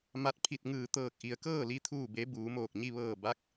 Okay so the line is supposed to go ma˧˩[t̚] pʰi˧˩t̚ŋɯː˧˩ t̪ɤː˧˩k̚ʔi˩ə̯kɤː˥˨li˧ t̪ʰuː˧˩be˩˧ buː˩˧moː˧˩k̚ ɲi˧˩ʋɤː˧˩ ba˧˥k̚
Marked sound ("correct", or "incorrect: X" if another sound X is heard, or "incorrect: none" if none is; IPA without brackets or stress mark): correct